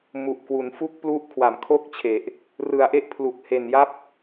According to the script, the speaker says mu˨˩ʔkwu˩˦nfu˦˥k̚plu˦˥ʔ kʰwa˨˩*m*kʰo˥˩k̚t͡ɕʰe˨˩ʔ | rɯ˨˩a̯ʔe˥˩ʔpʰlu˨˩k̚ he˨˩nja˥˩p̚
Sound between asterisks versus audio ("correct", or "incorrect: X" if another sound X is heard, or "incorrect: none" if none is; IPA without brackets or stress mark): correct